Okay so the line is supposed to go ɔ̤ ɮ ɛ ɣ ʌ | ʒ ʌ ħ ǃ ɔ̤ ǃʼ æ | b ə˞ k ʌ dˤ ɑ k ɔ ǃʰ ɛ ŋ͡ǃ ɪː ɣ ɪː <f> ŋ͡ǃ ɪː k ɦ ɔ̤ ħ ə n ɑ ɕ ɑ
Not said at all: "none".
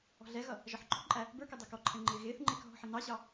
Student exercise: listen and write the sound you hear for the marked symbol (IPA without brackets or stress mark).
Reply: θ